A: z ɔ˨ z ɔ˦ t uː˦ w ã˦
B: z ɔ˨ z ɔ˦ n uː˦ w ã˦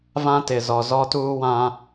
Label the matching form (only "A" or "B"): A